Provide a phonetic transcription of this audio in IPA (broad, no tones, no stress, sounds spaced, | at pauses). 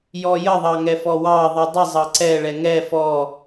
j ɔ j ə ðˤ ɑ ŋ ɛ f ɔ w ɑ ðˤ i dˤ ə zˤ ɑ ǀ ɛ ɭ ɛ ŋ ɛ f ɔ